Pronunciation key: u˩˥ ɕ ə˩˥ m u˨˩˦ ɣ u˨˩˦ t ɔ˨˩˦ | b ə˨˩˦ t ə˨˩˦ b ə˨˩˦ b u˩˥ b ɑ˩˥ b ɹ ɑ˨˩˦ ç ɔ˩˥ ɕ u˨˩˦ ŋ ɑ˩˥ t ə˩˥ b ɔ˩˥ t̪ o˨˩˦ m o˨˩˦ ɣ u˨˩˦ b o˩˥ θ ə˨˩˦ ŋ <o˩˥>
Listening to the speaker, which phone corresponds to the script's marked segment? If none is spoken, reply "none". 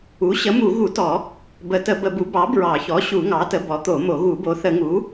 u˩˥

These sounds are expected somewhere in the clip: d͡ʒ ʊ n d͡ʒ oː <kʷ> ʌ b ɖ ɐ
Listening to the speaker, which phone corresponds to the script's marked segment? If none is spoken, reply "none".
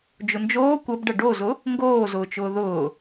kʷ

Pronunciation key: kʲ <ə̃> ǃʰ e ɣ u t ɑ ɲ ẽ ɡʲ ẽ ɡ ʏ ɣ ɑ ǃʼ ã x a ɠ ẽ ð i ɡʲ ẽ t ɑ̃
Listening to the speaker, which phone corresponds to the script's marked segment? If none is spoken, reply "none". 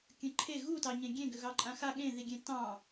ə̃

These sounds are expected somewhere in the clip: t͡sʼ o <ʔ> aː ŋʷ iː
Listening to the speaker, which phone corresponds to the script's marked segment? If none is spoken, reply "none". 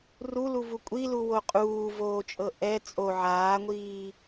ʕ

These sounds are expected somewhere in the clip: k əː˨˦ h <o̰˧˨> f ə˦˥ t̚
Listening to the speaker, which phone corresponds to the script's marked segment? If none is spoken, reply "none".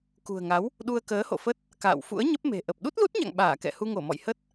o̰˧˨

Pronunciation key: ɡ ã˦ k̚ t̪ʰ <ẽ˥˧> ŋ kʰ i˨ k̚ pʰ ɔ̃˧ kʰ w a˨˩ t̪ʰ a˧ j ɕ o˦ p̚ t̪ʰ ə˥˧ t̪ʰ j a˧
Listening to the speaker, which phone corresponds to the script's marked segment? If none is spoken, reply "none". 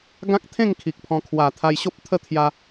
ẽ˥˧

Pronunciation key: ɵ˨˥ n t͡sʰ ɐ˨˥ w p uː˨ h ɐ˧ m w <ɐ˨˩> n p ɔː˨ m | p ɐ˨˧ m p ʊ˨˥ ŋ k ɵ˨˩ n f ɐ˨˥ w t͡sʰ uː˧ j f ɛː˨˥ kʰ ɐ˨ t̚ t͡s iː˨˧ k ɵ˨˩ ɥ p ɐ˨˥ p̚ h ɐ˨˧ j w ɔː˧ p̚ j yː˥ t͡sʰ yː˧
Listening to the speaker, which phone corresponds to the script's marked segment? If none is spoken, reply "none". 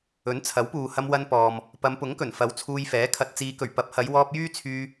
ɐ˧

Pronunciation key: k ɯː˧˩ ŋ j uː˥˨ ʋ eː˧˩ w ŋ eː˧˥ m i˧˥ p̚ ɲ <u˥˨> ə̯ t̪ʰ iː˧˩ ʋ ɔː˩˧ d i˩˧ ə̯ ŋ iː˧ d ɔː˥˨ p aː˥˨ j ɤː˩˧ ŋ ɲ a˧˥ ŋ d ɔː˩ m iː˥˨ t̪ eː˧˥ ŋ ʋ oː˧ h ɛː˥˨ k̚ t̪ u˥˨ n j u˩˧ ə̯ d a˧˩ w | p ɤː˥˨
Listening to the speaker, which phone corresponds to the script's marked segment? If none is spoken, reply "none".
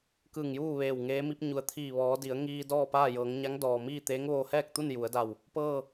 u˩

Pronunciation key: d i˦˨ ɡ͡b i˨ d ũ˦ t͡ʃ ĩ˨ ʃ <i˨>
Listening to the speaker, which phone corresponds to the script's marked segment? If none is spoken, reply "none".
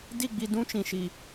i˨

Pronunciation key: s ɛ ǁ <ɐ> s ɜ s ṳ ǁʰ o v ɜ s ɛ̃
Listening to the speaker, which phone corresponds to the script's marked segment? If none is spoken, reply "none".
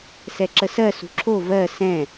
ə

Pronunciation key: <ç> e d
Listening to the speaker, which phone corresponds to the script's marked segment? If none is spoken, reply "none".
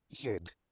ç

